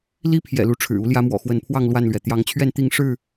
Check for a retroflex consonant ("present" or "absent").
present